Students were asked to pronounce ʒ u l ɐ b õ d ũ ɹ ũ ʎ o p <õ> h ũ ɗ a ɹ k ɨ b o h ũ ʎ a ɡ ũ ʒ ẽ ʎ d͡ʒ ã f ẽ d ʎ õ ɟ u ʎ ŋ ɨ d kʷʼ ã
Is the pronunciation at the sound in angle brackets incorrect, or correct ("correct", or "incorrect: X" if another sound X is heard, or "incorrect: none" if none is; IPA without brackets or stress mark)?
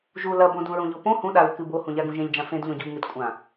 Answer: correct